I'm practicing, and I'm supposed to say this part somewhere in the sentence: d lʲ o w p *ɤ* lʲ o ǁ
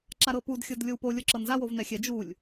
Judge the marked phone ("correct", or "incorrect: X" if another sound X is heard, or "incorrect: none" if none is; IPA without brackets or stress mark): incorrect: o